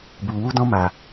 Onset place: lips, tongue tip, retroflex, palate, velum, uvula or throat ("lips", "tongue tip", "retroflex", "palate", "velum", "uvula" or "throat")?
lips